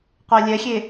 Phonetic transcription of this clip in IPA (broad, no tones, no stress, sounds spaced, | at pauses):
qʷ ɛ lʲ ɛ xʲ e